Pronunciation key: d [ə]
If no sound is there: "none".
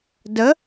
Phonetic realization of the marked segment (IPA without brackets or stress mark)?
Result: ə